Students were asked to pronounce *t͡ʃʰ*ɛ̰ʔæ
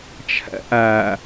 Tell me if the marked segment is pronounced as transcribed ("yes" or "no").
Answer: yes